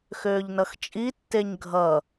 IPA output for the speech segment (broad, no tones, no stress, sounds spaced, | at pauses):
x øː ʎ n ʌ x t͡ʃʼ i tː e ɲ ɡʱ ʌ